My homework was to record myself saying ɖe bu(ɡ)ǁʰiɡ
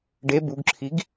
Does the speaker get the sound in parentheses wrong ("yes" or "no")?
no